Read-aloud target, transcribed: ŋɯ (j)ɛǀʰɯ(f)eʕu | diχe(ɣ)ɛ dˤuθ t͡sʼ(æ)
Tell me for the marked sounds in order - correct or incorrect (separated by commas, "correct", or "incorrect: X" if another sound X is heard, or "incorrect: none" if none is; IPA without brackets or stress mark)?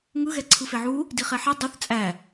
incorrect: ɣ, correct, incorrect: ħ, correct